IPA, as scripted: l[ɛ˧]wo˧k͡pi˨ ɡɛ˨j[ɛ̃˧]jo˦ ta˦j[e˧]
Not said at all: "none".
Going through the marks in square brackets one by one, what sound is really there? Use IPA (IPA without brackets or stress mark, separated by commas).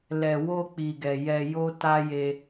ɛ˨, ɛ˧, e˧